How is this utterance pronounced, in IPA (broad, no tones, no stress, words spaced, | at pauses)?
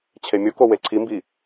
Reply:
t͡ɕʰemʲoko weǀʰimbi